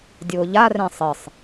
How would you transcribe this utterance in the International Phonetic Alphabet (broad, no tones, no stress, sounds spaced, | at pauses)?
dʲ ʊː ʎ a r ɛ̃ sˤ ɪ sˤ